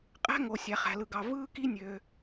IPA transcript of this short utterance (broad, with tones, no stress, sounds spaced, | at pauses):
qʼ æ̤˥ ŋ o˩ sʲ æ˩ χ æ̤˩ l ɯ˩ ɡ ɑ˩ v ɯː˥ k i˥ nʲ ø˩